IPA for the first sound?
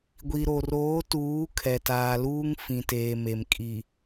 ɡʷ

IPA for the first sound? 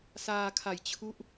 s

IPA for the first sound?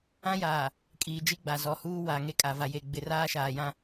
ã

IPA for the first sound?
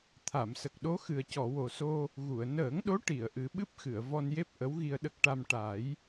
t̪ʰ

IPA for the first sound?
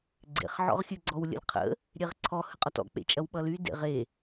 ɡ͡ǀ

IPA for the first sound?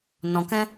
n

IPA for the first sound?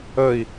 ə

